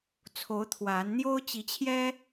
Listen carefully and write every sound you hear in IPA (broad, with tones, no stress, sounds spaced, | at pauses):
t͡sʰ o˨˦ ʊ̯ t̪ʰ w a˨˦ n n̪ j o˦ ʊ̯ t͡ɕ i˨˦ t͡ɕʰ j ɛ˦